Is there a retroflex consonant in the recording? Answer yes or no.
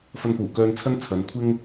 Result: no